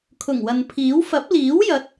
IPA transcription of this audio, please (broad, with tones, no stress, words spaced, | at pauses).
kʰʊ˨˩ŋwɐ˨npʰiː˨˥w fɐ˨˥p̚liː˨˥wjɐ˨˥t̚